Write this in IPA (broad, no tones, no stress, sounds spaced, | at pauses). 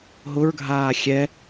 ɦ ʊ ɹ ɡʱ aː xʲ ɛ